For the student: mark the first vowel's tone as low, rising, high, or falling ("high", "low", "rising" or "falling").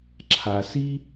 low